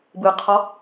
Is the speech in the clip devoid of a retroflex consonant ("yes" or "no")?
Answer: yes